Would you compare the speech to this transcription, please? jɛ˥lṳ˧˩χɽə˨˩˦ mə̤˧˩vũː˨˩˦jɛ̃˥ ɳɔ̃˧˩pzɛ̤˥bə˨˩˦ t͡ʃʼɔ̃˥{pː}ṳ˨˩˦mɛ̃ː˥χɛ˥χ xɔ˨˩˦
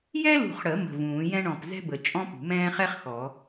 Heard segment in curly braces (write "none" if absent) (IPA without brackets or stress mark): p